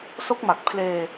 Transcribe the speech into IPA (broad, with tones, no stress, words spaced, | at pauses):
so˦˥k̚ma˨˩k̚pʰleː˧